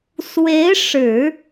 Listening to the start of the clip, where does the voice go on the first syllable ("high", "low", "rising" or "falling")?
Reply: rising